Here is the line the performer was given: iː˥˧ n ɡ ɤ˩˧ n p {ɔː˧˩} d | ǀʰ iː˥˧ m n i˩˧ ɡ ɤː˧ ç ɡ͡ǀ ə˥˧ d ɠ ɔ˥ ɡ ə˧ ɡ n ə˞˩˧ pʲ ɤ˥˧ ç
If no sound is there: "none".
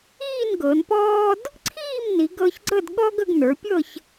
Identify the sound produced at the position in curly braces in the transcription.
ɔː˥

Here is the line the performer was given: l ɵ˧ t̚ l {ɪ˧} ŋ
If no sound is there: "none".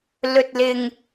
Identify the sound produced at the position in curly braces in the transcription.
ɪ˧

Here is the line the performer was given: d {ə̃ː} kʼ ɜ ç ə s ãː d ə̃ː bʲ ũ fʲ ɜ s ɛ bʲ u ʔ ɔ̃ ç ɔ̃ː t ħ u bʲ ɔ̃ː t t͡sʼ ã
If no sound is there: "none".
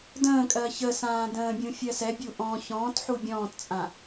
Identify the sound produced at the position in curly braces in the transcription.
ə̃ː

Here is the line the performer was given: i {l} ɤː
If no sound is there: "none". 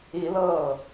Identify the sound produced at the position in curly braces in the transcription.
l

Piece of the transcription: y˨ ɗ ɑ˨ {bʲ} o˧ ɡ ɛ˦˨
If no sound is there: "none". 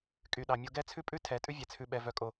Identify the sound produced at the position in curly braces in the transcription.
mʲ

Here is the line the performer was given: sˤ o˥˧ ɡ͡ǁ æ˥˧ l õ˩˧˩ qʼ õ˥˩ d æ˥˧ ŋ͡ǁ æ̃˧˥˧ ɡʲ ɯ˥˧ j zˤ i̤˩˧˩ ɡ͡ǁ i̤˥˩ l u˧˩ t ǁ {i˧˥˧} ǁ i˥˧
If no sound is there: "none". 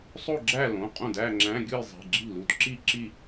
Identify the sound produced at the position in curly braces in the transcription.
i˥˧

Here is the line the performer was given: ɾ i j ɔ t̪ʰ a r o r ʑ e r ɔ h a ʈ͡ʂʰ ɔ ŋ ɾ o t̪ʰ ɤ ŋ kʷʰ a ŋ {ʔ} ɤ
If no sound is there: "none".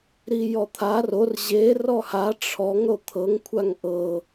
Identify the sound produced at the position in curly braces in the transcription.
ʔ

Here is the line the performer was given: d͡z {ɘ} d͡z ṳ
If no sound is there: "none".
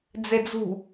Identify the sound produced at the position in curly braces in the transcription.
e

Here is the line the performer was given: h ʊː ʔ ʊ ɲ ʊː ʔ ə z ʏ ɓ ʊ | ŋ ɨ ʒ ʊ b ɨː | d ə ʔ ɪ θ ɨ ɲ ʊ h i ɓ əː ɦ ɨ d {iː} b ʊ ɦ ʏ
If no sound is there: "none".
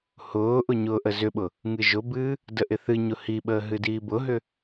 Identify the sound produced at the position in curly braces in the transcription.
iː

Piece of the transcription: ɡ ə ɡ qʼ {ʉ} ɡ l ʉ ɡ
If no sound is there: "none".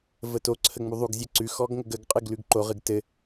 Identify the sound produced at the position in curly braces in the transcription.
ɨ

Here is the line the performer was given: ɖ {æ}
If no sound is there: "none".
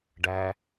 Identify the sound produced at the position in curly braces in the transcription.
æ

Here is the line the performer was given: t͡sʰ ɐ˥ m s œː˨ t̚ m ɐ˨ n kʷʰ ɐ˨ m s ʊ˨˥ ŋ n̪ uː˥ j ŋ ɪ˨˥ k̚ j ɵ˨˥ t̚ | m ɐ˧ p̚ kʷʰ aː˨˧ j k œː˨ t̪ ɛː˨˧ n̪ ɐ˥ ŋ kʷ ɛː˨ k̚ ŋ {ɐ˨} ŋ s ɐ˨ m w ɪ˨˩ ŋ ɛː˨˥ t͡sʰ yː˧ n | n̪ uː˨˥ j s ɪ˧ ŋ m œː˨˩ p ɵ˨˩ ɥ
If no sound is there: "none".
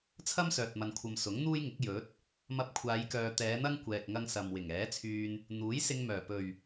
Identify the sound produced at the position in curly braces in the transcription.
ɐ˧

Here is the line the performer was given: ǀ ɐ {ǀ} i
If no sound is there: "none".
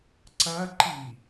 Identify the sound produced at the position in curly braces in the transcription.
ǃ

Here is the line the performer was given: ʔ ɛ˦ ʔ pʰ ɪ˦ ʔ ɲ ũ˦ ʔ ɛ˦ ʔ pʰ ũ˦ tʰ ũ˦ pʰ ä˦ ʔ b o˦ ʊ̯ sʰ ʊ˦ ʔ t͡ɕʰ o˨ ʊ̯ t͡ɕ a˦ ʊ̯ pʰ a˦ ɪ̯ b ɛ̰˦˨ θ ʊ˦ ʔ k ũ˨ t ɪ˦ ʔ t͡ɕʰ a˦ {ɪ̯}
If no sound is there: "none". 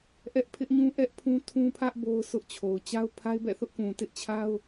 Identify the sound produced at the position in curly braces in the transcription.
ʊ̯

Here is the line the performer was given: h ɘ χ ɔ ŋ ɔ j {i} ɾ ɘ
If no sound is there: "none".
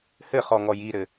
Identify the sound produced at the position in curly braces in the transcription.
i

